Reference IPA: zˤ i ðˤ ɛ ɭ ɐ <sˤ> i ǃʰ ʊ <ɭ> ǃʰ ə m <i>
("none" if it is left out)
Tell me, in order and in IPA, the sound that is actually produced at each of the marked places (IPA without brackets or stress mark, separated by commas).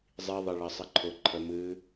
sˤ, none, ɨ